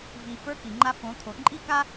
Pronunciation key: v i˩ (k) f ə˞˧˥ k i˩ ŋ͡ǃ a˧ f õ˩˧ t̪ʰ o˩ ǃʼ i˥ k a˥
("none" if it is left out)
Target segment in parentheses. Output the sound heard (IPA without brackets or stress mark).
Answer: none